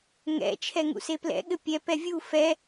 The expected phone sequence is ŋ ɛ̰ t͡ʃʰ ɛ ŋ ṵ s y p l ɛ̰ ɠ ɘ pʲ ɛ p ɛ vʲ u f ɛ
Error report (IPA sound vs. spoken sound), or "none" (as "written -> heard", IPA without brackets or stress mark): y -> e